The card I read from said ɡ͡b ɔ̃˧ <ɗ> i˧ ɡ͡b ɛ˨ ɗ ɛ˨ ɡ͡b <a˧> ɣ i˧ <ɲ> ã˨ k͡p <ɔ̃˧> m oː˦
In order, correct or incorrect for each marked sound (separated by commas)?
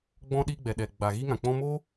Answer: correct, incorrect, incorrect, correct